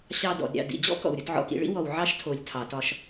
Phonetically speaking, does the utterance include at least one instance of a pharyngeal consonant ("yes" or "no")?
yes